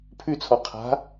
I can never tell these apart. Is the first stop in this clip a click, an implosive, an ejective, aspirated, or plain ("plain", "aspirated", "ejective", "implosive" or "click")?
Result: aspirated